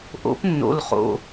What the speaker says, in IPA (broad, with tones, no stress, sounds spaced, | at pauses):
ʔ o̰˨˥ p nː o̰˩˧˩ l χ o̰˩˧˩